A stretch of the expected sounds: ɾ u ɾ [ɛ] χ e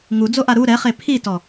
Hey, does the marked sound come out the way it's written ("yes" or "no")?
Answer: yes